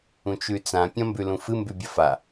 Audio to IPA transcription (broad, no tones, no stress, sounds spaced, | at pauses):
ũ t͡ʃ ʉ t͡s ã pʲ ɐ̃ m b ʉ l ũ f ɨ m b ʉ bʲ ɐ f a